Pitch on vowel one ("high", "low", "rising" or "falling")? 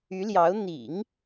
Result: rising